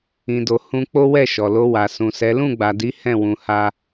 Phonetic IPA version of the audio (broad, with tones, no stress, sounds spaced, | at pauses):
ĩ˧ d o˧ h ũ˧ k͡p o˦ w ɛ˦˨ ʃ ɔ˨ l o˧ w a˨ s ũ˨ s ɛ˨˦ l ũ˦˨ ɡ͡b a˨ d i˨˦ h ɛ̃˦˨ w ũ˧ h a˦